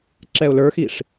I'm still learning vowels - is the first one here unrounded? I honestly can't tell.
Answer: yes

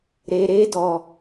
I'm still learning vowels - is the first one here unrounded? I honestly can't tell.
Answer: yes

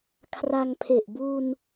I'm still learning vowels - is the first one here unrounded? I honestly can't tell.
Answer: yes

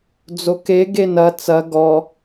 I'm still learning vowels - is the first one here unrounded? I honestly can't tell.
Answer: no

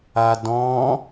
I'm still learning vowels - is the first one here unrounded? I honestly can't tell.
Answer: yes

